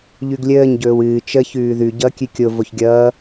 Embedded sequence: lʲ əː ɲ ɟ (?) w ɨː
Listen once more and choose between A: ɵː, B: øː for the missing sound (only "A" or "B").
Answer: A